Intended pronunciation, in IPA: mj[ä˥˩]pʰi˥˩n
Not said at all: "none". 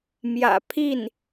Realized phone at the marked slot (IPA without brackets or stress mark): ä̰˨˩